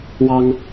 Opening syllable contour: high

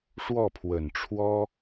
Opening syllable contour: falling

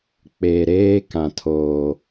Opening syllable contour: low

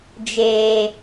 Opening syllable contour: low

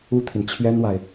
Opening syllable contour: high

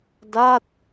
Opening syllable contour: falling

